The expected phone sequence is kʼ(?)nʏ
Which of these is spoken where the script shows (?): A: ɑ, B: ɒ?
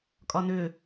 B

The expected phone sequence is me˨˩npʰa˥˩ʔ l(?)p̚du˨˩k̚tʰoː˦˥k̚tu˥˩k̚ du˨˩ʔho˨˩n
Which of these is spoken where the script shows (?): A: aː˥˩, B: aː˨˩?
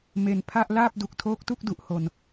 A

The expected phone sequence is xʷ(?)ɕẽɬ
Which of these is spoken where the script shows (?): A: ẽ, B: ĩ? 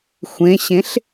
A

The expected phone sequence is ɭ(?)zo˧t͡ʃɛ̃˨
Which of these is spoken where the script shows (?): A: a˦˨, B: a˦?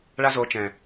B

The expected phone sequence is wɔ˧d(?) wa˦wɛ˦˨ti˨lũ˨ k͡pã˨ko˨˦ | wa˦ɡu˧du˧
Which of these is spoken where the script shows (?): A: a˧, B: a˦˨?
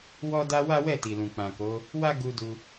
A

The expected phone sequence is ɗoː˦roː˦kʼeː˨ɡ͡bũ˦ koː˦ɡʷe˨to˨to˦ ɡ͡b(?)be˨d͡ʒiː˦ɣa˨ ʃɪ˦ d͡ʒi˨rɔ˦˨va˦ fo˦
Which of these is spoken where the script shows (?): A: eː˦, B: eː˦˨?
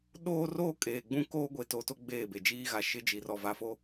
B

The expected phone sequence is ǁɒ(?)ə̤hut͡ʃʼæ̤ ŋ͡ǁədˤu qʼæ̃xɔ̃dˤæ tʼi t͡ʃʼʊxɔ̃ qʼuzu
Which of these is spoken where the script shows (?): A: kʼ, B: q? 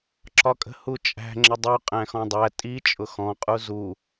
A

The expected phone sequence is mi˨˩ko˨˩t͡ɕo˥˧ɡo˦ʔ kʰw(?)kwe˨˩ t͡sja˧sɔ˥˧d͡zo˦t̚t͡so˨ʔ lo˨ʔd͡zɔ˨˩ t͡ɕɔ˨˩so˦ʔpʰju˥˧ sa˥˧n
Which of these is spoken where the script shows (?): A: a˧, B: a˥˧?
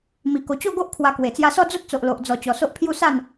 A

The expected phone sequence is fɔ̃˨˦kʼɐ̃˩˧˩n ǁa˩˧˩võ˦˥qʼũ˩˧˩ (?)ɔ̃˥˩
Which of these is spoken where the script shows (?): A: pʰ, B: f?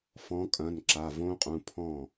A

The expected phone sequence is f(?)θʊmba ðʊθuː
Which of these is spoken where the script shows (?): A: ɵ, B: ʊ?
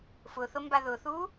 B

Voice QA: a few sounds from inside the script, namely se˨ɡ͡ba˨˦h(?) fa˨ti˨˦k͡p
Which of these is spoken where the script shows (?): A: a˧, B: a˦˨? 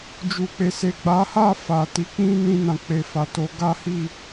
B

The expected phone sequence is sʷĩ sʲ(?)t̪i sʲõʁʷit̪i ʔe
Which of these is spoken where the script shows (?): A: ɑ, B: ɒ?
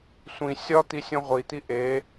B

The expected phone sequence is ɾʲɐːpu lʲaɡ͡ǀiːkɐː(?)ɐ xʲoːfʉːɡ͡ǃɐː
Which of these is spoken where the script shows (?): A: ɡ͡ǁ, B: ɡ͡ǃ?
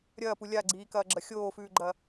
A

